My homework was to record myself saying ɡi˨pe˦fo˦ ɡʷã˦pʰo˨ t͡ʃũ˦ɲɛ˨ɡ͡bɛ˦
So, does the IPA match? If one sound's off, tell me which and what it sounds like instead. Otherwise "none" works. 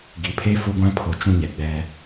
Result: p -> pʰ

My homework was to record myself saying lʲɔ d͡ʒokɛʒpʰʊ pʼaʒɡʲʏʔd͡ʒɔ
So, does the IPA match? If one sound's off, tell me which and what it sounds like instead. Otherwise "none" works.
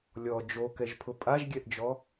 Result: ʏ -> ɛ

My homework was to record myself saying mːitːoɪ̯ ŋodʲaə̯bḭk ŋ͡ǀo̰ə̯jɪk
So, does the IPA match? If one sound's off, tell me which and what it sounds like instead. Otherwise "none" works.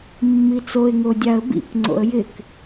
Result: tː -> t͡s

